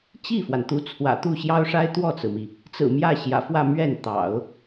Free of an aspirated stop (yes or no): no